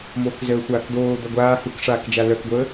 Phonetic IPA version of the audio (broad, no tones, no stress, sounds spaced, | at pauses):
m oː k z əː xʷ aː k d̪ oː d̪ œ ɡʷ aː h u k ʂ aː k d͡ʒ a l œ k ɡʷ əː